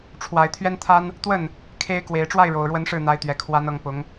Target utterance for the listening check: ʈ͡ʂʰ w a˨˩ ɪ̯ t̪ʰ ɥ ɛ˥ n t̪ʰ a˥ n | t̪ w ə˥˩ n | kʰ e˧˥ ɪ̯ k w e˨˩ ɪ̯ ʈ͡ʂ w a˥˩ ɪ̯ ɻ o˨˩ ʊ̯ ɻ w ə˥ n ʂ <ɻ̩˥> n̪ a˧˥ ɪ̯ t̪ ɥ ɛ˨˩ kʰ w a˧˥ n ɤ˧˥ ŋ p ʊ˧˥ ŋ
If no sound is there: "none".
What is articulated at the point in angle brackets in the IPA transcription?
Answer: ɻ̩˥˩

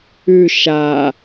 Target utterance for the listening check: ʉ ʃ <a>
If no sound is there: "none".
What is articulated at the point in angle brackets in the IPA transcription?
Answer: a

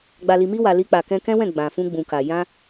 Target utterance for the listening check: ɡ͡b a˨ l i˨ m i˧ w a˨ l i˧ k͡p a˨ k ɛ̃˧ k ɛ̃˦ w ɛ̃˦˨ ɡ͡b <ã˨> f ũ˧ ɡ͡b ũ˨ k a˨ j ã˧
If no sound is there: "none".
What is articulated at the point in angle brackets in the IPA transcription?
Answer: ã˨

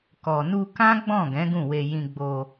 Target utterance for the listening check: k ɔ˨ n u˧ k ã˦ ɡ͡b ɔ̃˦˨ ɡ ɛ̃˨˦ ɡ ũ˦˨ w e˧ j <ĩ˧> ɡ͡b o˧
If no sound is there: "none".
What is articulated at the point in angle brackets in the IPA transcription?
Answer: ĩ˧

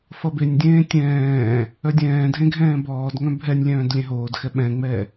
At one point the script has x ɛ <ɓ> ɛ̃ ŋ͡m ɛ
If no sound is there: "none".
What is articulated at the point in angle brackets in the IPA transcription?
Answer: ɓ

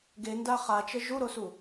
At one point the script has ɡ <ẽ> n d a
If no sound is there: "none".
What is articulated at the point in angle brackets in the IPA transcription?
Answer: e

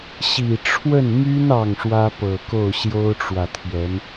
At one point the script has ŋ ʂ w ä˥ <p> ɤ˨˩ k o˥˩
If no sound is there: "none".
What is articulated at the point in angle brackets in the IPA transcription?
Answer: p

